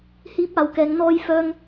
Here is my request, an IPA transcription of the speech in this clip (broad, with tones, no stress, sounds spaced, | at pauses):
h iː˨˥ p̚ aː˨˩ w k ɛː˨˩ ŋ n̪ ɔː˧ j f œː˧ ŋ